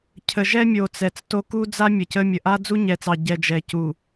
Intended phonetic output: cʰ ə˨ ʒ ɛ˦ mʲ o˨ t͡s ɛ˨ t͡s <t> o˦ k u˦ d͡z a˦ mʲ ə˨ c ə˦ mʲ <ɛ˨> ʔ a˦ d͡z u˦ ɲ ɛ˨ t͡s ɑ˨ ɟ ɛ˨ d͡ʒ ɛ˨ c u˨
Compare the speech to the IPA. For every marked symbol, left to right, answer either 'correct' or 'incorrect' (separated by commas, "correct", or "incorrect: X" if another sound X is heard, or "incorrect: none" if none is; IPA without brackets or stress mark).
correct, incorrect: ə˨